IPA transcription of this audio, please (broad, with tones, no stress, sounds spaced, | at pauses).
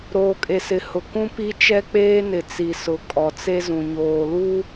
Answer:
ɾ oː˨ kʼ e˨ s ɪ˨ h ʊ˨ k ũ˦ p i˦ t͡ʃ ɛ˦ k͡p eː˦ n ɪ˨ t͡s i˨ s ʊ˨ kʼ ɔ˨ t͡s e˦ z ũ˨ ɲ oː˨ l u˦